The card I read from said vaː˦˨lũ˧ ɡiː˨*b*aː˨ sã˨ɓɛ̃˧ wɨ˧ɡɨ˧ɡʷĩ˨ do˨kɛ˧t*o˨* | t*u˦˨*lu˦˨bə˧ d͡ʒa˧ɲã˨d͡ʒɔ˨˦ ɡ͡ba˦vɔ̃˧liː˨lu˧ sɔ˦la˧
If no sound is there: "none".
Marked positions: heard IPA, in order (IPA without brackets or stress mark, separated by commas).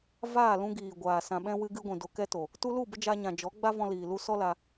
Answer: ɡʷ, o˨, u˧